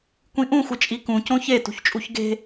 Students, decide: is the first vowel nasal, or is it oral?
nasal